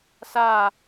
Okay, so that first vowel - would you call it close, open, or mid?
open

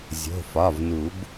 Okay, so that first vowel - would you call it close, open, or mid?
mid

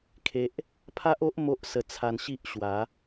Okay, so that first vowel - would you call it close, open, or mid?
mid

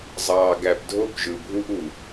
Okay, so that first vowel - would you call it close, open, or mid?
open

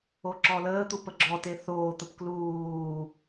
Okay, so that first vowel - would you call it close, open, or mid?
mid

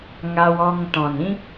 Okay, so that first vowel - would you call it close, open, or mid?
open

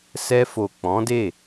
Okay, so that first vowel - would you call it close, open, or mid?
mid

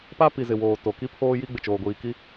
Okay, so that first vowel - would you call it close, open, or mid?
open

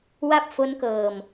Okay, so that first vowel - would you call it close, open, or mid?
open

